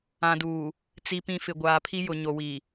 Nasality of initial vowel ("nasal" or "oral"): nasal